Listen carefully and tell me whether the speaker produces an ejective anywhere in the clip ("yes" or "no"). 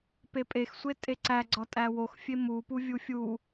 yes